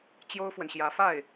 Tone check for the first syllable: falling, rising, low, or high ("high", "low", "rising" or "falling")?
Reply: high